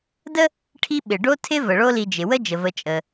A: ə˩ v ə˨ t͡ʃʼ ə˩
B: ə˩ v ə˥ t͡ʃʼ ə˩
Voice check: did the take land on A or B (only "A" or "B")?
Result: A